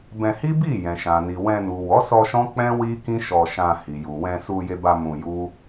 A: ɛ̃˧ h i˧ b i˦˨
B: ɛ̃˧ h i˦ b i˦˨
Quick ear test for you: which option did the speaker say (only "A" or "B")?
B